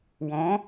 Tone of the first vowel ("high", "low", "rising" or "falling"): rising